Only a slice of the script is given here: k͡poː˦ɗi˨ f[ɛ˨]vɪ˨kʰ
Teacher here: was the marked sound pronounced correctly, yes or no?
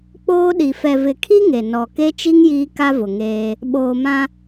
yes